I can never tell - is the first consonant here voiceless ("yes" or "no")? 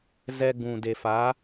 no